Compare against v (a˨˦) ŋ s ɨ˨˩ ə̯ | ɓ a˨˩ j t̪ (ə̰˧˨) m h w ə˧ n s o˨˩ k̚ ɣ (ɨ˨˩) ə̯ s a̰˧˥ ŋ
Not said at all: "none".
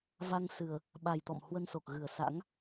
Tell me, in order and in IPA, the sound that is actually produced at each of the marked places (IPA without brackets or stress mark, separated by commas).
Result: a˧, ɔ̰˧˨, ɨ˨˩